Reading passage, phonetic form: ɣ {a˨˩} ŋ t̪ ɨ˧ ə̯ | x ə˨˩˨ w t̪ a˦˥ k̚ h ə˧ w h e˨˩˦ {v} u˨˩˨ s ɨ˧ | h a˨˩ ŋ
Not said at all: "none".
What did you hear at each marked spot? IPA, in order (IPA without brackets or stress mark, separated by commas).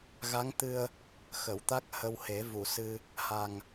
a˧˥, v